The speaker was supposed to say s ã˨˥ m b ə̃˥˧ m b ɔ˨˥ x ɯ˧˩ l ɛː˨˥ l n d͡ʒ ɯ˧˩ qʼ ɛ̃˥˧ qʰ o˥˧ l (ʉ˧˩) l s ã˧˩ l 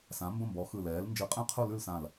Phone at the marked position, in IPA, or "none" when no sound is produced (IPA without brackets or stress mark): ʉ˥˧